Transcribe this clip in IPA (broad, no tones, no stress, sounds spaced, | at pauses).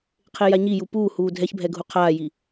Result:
qʰ e j a ɲ i j u p uː h uː dʱ ɛ ç bʱ ɛ ɡʱ u qʰ aː j i